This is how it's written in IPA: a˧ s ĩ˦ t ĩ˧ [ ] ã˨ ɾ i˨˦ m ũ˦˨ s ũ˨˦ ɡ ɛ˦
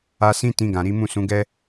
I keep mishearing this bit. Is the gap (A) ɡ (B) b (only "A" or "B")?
A